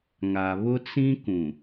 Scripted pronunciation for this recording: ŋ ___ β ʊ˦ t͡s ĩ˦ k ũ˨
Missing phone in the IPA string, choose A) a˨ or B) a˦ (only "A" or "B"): A